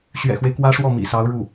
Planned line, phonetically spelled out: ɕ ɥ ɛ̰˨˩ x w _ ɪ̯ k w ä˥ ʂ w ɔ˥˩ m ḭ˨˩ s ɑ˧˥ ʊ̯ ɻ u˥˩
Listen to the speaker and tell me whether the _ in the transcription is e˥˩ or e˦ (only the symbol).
e˦